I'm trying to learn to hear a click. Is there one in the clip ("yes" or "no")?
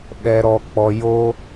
no